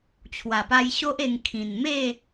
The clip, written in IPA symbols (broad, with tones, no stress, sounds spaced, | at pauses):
t͡ɕʰ w a˨˩ p a˧ j ɕ o˦ ʔ e˧ ŋ kʰ ĩ˨˩ n m e˥˧